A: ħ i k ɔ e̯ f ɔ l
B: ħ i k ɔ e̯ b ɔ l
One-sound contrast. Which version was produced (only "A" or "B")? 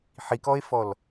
A